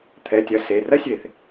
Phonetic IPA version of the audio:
t̪ʰɛ˩˧˩tʲɐ˨˦ se˩˧˩rɐ˥sʲe˧˩˧θ

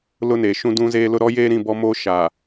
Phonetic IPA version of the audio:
lʊ˦neː˨ʃũ˦ dũ˦zeː˦lʊ˦ ɾɔ˦jeː˦ɾĩ˦˨ bɔ˦moː˦ ʃa˨

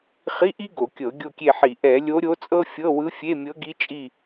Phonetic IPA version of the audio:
χi˧˥˧ʔi˥ ɡo˧˩˧kʲɤ˧˩˧ ɡʲo˦˨kʲe˦˨ħi˧˩˧ ʔɛ˧˩˧lʲo˧˥ɾʲo˧˥t͡sʼɤ˥ fʲɤ˧˥˧wɯ˧˥fʲe˧˥˧mʲɤ˧˥ ɡi˧˥t͡ʃʼi˦˨

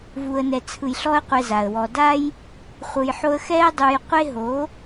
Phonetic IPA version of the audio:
vu˨ə̯nɛ˨t͡sʰɯ˨j ɬɔ˦ə̯qʷɛ˧ za˨ə̯ wɔ˨da˦j | χʷɯ˨jħo˧ə̯ xɛ˦ə̯dˤu˧j qʷe˦ ɦo˨˦

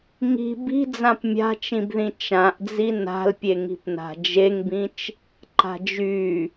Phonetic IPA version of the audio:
ŋi̤ bi̤ d͡zãpmʲa̤t͡ʃĩbðĩ t͡ʃãʔd͡zi na̤lpʲe ŋi̤pna̤d͡ʒeŋbĩt͡ʃ | ǃa̤d͡ʒy

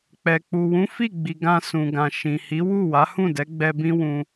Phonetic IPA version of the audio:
k͡pɛ˨k͡pu˨ wũ˨˦fi˦˨ɡ͡bi˨ ɡã˧sũ˨ɡã˨ ʃĩ˨hi˨˦wu˦˨ wa˨˦hũ˦˨dɛ˨˦ ɡ͡bɛ˧ bĩ˦wũ˧

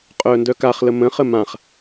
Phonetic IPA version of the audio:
qʼœːndœkaχlə mə̃χə mãχ

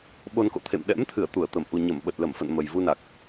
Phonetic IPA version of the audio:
ɓo˧nko̰˧˨ t̪ʰḛ˧˨mɗɛ̰˧˥mt̪ʰɨ˧˩ə̯ t̪u˧˩ə̯t̪ə˧˩m ʔu˨˩ɲə˧˩m ɓə˨˩t̚lə˧˩mfə̰˧˨n mə˨˩jvu˧na˨˩k̚

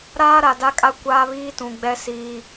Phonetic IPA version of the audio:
ɾaː˦ɾa˨da˦kʼa˦ kʷaː˦βiː˦tũ˨ɡ͡bɛ˦ siː˦

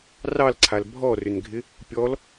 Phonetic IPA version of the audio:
rɑlǀʰal bʱɔrʏnɡʱɪ | pʲɔl

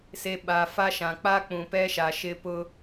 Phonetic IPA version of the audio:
se˨ ɓa˨fa˦ʃã˨ k͡pa˦k͡pũ˨pɛ˦ʃa˨ ʃɪ˦ pʊ˦

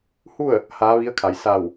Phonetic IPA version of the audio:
hu˥˨ə̯ | haː˧˥ʋi˧˥ə̯kʰa˩˧j sa˧˩w

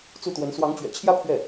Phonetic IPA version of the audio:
t͡su˥˩t̪wə˧˥n swɑ˧˥ŋt͡ɕɥɛ̰˨˩t͡ɕʰjä˥ pʰɥɛ˥˩

